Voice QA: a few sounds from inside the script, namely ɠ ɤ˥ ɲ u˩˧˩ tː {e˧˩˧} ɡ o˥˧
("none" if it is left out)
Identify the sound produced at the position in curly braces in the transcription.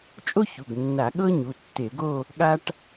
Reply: e˧˩˧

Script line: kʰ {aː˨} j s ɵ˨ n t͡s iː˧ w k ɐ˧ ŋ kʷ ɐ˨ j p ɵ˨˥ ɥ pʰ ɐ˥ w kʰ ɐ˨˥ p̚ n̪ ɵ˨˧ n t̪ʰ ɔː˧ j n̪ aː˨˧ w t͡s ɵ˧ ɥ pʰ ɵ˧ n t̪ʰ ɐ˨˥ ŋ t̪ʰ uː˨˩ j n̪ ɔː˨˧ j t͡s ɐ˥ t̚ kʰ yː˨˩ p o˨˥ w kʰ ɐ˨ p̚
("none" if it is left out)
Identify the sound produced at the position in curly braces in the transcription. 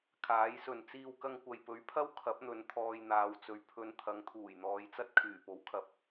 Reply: aː˨˥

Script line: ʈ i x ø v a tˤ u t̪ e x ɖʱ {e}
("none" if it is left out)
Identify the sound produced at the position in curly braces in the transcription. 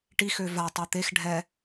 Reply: ɛ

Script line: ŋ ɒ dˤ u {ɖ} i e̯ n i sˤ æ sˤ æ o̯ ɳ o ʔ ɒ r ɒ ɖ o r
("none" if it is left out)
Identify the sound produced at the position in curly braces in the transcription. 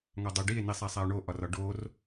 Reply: ɖ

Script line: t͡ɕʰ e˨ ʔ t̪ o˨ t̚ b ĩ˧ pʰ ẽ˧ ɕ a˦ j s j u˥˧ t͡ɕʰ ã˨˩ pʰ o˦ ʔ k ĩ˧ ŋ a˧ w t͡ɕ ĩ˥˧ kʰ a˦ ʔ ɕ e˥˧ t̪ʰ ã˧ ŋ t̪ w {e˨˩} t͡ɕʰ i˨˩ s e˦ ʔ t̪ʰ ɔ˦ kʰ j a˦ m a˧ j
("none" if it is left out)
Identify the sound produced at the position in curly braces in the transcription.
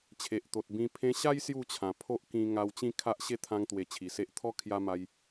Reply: e˨˩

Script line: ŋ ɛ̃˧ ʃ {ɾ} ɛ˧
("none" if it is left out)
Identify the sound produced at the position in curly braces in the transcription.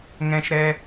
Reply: ɾ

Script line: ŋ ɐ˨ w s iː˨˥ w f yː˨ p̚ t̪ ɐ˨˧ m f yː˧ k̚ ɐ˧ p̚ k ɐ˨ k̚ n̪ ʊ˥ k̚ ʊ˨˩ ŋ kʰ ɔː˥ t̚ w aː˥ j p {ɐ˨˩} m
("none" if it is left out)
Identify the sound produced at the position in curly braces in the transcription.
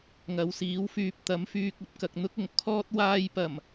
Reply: ɐ˨˩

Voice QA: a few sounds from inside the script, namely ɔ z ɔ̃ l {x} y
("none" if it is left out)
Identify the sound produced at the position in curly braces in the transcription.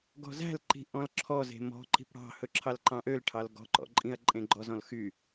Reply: x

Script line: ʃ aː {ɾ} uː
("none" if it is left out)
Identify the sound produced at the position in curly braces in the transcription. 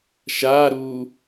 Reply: ɾ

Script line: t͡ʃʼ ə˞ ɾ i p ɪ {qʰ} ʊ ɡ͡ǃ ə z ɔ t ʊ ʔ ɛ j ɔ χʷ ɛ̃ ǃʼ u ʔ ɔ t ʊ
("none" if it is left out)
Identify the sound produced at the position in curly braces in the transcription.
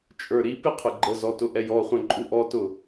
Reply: qʰ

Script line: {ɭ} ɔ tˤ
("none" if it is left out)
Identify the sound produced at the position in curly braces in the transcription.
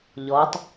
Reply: ʎ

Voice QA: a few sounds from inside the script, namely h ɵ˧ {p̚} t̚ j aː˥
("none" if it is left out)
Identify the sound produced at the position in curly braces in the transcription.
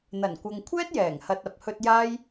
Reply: none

